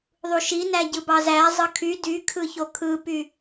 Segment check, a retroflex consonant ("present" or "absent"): absent